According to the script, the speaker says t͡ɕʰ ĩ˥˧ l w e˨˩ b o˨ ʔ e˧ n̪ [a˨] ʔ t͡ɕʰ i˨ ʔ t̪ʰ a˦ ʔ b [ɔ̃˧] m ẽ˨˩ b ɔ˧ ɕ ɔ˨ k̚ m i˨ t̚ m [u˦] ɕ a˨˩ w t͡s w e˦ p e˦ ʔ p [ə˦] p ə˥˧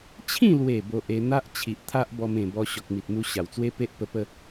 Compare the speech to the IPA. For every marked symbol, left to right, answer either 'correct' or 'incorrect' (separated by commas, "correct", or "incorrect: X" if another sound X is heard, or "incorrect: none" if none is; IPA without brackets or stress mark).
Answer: incorrect: a˦, incorrect: ɔ˧, incorrect: u˧, incorrect: ə˧